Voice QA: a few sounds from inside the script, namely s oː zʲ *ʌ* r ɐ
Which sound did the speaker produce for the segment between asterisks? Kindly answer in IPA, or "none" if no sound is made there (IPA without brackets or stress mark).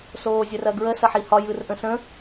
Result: ə